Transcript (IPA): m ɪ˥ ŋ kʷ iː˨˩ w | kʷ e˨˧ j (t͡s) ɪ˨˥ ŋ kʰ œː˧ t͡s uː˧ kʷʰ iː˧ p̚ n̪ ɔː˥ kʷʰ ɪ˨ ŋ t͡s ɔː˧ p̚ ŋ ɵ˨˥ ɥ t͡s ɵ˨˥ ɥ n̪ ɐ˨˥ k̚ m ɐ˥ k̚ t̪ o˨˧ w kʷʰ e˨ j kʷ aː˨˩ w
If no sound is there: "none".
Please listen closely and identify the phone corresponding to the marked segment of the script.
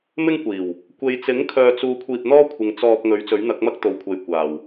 t͡s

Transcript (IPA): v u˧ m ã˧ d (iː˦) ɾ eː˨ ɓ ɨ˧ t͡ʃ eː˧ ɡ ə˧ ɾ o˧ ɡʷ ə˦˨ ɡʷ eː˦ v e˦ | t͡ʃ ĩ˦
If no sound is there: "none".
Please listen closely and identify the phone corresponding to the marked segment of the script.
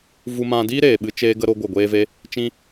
iː˦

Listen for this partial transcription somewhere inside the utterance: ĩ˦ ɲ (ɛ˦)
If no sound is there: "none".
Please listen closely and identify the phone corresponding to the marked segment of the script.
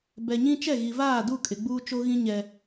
ɛ˦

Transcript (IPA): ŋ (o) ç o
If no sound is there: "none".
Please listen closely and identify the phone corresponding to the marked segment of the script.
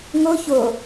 o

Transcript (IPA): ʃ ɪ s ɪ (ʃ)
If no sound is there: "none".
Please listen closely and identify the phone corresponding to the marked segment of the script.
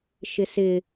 none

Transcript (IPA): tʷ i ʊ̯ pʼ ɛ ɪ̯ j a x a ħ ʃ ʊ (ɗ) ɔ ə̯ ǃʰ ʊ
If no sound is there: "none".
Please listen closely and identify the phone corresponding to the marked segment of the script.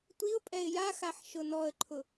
n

